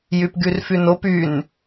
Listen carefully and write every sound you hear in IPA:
j y p ɡ y r f y n o p y n

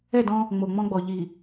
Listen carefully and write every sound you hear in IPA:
ɛ˦˨ d ɔ̃˦ | ŋ͡m o˨ ŋ͡m ɔ̃˦ ɡ͡b ɔ˨ ʎ i˨

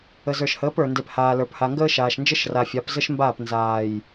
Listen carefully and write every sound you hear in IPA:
ə˨ z ə˞˨ ʃ h əː˨˦ p ə˞˨ n d e˨ p h aː˨ l ə˞˨ p h a˨ ŋ ɡ əː˦ ʃ aː˨ ʃ n d͡ʒ ə˦ ʃ r a˨ fʲ a˨˦ p z ə˦ ʃ m b aː˦˨ p n z aː˨ j

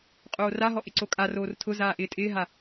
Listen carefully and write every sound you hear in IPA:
qʼ oː r a ɦ ɔ ʔ ɪ ǀ o kʼ a r oː r tʰ ʊ z aː ʔ ɪː tʼ ɪː ɦ a

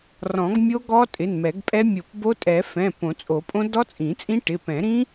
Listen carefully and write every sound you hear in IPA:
r ɔ̃˨˩˦ ɡ mʲ o˦˥ ɡ ɔ˦˥ tʼ ɪ˩˧˩ n m ɛ˨˩˦ ɡ pʼ ɛ˦˥ mʲ o˨˩˦ p b o˦˥ tʼ ɛ˨˩˦ f ɛ̃˩˧˩ p õ˨˩˦ t͡sʼ o˨˩˦ pʼ õ˦˥ d ɔ˦˥ t͡sʼ ĩ˨˩˦ t͡sʼ ĩ˦˥ ʈ ɪ˩˧˩ p ɛ̃˨˩˦ ɾ ĩ˦˥

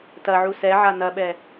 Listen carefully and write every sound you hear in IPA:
t ɐ ʕ u s ɛ ʕ a n ɐ ɓ ɛ

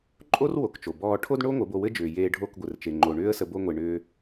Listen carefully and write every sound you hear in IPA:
ǃʼ o˦ r w o˨ k t͡ʃ o˨ b ɔː˦ ʈʰ o˦ d ɳ o˦ ŋʷ ɘ˨˦ b o˧ w ɘ˦ d͡ʒ ʏː˨ j eː˧ ɖʱ o˦˨ k ɡʷ ɘ˨ r t͡ʃ e˨ ŋ͡ǃ o˨ ɳ ʏː˦ ə̯ s ə˧ b o˧ ŋʷ e˨ ɳ ʏː˧

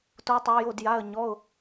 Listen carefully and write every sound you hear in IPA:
t o˧˥ tˤ a˧˥ j o˧˥˧ d j a˧˥˧ ə̯ ɲ ɔ˧˥˧ ʊ̯

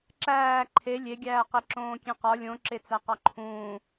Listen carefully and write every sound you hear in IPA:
ǁ æː ǃʰ e lʲ e ɡʲ æː q e ǁ õː kʲ ẽ q ɒ lʲ õ ǁ e t͡s æ q ɒ ǃʰ ũː

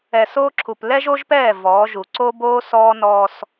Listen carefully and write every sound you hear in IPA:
ɛ˨ s oː˦ ǁʰ u˨ p l ɛ˦ ʒ o˦ ʒ p ɛː˦˨ v ɔː˨˦ ʒ u˨ ǀ o˦ b oː˦ s ɔː˦ n ɔː˦ s

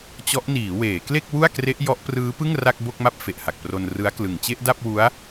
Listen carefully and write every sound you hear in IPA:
t͡ɕ ɔ˦˥ ʔ n iː˩˦ w eː˩˦ k l e˥˩ k̚ w u˥˩ a̯ k r e˦˥ ʔ j ɔ˦˥ ʔ p r ɯː˦˥ p ɯ˥˩ ŋ r a˥˩ k̚ b o˥˩ k̚ m a˥˩ p̚ f e˨˩ ʔ h a˨˩ k̚ p r o˧ n r ɯ˦˥ a̯ k l ɯ˨˩ ŋ t͡ɕ e˥˩ ʔ d a˥˩ p̚ w u˦˥ a̯

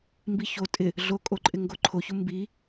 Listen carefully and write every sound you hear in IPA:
m b i ç o tʼ ɪ | ɮ o kʼ o ǃʼ ɪ ŋ ɡ o ǃʰ o ç ʊ m b i

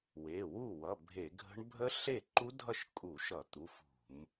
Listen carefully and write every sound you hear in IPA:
w e˩˧˩ w u˥˩ w ʌ˩˧˩ bʱ e˧˩˧ ɡʱ ə̤˦˥ ɳ bʱ ə˦˥ ɬ e˥˩ ǃ u˦˥ dʱ ʌ˥˩ ʃ kʼ u˧˩˧ ʃ ʌ˧˩˧ t̪ u˩˧˩ f ṳ˧˩˧ m

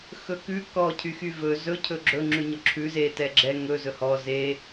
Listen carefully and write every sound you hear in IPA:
x ɵ k ʉ k ɔ cʰ y x y v ɵ z ɵ cʰ ɵ ɡ͡ǁ ɵ ŋ͡ǁ ʉ ɲ ɔ ǁʰ ʉ z e t ɛ ɡ͡ǁ ɛ ŋ ɵ z ɵ h ɔ z e

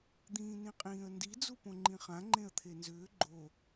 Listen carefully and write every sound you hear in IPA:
d̪ ĩː n ĩ qʼ ĩː ə̯ n d i d͡z u p õ ŋ͡ǃ ĩ χ ã ŋ͡ǃ ẽ ə̯ t̪ʰ e n z ʏː ɡ͡ǃ o

